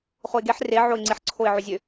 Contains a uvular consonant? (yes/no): yes